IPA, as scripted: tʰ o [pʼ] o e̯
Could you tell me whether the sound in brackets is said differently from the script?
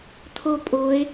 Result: no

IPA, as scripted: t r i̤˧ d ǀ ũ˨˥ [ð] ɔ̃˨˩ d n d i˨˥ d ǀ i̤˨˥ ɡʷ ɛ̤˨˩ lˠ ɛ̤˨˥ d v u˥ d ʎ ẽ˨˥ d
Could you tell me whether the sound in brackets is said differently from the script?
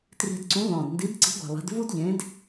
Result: no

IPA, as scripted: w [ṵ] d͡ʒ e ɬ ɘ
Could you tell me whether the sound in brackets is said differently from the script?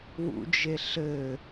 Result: no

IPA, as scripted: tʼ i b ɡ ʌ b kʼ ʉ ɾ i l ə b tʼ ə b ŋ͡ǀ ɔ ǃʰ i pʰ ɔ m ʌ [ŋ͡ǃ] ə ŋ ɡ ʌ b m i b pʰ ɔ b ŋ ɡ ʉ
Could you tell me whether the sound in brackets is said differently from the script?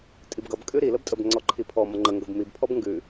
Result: no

